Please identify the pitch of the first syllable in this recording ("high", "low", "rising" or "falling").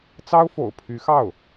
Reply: high